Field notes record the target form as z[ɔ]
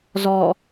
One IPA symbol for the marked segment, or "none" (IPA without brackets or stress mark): ɔ